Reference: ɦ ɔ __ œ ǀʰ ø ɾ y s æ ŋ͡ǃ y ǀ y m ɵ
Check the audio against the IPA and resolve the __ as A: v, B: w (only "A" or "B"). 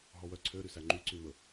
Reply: B